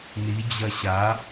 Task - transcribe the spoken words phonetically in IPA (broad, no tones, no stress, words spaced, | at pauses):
ni d͡ʑɐɕa